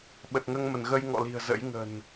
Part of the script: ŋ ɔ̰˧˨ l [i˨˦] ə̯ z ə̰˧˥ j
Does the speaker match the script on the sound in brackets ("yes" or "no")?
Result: no